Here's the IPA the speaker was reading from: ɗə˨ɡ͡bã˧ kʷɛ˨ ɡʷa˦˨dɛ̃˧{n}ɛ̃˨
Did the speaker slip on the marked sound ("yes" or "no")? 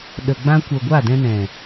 no